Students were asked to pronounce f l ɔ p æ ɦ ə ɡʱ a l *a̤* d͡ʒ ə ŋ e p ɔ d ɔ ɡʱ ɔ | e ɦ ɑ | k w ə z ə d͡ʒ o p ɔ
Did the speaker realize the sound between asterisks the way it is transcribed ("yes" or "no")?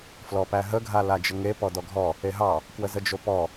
no